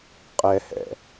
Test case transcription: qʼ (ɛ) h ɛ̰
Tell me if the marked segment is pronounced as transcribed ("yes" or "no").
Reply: yes